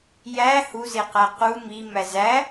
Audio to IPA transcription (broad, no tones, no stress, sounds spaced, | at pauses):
j æ h u z e q æ q u m i m æ z æ